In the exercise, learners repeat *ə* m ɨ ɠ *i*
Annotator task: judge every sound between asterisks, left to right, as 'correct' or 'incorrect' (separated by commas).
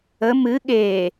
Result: correct, incorrect